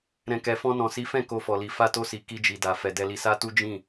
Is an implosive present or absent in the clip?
absent